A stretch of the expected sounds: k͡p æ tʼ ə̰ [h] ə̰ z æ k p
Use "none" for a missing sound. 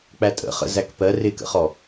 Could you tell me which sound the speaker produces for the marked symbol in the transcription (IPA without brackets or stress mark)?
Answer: χ